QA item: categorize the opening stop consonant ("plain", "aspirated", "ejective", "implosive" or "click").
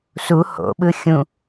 implosive